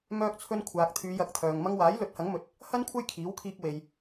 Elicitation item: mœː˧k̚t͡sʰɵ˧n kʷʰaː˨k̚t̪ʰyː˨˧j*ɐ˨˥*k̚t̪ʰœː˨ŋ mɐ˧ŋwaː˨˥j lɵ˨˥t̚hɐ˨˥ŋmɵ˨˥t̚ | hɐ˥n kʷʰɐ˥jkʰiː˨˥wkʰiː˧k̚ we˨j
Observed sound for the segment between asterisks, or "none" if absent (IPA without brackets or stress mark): ɐ˨˥